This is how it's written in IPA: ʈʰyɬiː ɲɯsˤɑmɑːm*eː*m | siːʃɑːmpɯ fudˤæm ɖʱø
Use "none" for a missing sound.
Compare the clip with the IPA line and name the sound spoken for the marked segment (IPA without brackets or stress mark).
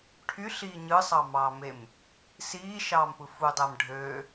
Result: e